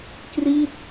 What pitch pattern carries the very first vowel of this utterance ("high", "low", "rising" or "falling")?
falling